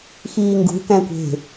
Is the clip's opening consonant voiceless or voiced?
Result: voiceless